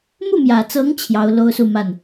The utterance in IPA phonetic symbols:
mu˥˩mjä˨˩t͡sɤ˧˥ŋ t͡ɕʰjɑ˧˥ʊ̯ lo˥ʊ̯su˥˧ma˥˩n

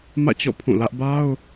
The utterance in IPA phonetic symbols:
mä̰˦˨t͡ɕɔ̰˦˨ pʰũ˦˨lä˦ʔ ba˦ʊ̯

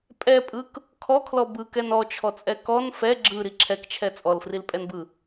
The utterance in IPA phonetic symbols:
pʼɛpʼɯk | kʰɔkʰlɔ bɯkɛn ɔt͡ʃʰɔt͡sʼɛ kɔn fɛ ɡ͡ǁɯɾi ǁʰɛkt͡ʃʰɛ t͡sʼɔlfrilpʼɛnbɯ

